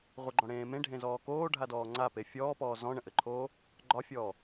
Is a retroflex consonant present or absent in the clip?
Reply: present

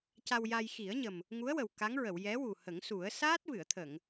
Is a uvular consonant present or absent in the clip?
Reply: absent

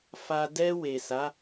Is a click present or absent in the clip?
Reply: absent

